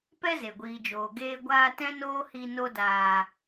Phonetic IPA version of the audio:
p ɛ˦ z e˨ ɡʷ iː˨ d͡ʒ oː˨ ɡ eː˧ ɡʷ aː˧ t ɛ̃˦ n oː˦ h i˧ n o˧ d aː˨

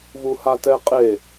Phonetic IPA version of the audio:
v u h a t ɛ qʼ e

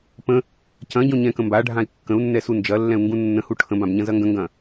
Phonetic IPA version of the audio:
p ə̃ | c ɐ̃ ɟ õ ɲ ɛ̃ k ə̃ m b a ɖʱ ã i̯ kː ə̃ u̯ nː ɛ s u n d͡ʒ ɐ lː ɛ̃ u̯ ŋ ɡ ũ nː ə̃ h u ʈʰ ə̃ b ã b ɲ ɐ̃ z ɐ ŋ ɡ ə̃ ŋ ɡ ɐ̃

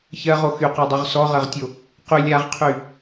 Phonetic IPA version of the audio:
ç ɜ ʁ o x y q ɔ dˤ y ʁ s ɔ ʁ ɜ ʁ tʲ o | q y lʲ a ʁ qʰ y

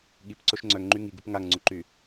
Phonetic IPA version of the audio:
ɠ i p ǀ o ʃ ŋ͡ǀ œ ŋ ŋ͡ǃ y ŋ i ɡ u p ŋ a ŋ ŋ͡ǀ u ǃ y

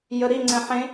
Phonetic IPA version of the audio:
j ə ɾ i ŋ͡ǀ ɛ̃ ħ ẽ

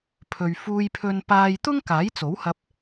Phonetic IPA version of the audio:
pʰ ɵ˨ ɥ f uː˧ j pʰ ɵ˧ n p aː˧ j t̪ ʊ˥ ŋ k aː˨˥ j t͡s o˨˥ w h ɐ˧ p̚

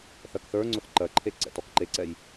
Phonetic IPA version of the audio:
θ ɜ k θ ə˞ ŋ͡ǀ ʊ θ ǃ ɜ ǃʰ e ǀ ɛ̰ t ɔ k ǃ e ǀ ɛ j

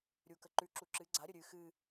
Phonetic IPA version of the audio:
ɾʲ u k ə ǃ ʉ ǁ u ǁ ɨ ɡ͡ǀ a ɾʲ ə ɾʲ ɨ x ɨ

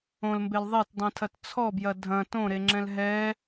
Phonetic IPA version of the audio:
õ l m b e l ðˤ e t dˤ ĩ tʰ ɐ t t͡sʰ ɔ b j ɐ dʱ ɐ̃ t õ ɾ e ŋ͡ǁ ɛ̃ l ɦ ɛ

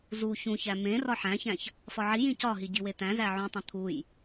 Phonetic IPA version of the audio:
z u ç ũ ç æ m ẽ r ɒ ħ æ̃ ç æ̃ ç | f ɒ ʕ i j ĩ c ɒ ɦ i ɟ i w e t̪ æ̃ z æ ʕ ũ tˤ õ t̪ʰ u j

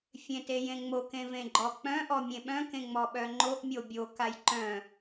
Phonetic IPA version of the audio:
fʲ ẽ t e j ẽ ŋ͡m o k ẽ v ẽ ɡ͡ǃ ɔ k͡p œ̃ ʔ ɔ mʲ ẽ ɓ œ̃ k ẽ ŋ͡m ɔ ɓ œ ŋ͡ǃ o ʔ mʲ o bʲ o k a j ǃ œ̃

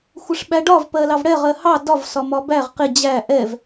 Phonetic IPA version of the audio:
xʷ ɪ ʂ ɓ æ ɖ ɒ v p ɜ l ɑ v ɽ ɛ ʁ ɜ h ɑ d ɒ v s ɒ m ɒ b æ ʁ q ɪ d͡ʑ æ ʔ ɛ v

